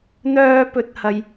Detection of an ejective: absent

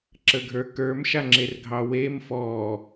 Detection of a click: present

